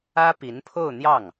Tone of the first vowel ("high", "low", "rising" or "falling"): high